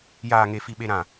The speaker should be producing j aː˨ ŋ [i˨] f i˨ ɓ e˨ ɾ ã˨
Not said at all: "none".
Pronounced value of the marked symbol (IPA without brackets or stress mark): e˨